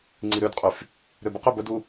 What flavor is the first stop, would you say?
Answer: click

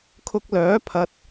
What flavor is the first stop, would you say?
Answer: aspirated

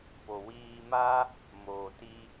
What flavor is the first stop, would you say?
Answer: plain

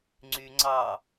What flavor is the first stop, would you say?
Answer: click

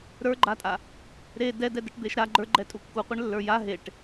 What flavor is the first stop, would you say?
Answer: click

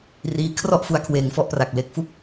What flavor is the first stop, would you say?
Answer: aspirated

